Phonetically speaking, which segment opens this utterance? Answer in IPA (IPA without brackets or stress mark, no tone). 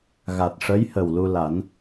ɣ